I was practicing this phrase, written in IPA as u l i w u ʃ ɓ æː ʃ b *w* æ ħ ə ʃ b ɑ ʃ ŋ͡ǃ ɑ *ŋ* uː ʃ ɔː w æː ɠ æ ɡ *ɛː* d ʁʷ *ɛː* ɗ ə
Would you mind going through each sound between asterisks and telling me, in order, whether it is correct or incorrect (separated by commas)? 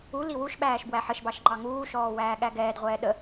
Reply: correct, correct, correct, correct